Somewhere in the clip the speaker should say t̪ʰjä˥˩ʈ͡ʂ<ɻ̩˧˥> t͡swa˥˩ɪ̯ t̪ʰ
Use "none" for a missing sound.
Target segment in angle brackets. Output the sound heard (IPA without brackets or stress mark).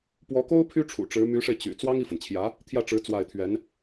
ɻ̩˧˥